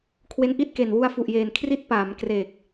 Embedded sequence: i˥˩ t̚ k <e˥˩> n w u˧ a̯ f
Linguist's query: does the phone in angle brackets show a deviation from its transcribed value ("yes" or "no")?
yes